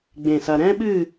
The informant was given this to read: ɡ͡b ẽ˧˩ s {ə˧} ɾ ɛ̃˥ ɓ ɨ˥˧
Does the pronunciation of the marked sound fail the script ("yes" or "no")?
yes